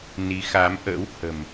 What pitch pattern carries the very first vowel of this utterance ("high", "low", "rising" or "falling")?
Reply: rising